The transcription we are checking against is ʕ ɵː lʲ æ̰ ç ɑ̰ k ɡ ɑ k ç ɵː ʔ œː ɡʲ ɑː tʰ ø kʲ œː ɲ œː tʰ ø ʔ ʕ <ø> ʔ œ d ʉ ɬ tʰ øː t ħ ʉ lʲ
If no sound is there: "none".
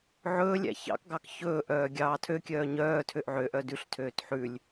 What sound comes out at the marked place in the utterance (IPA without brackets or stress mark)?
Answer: ø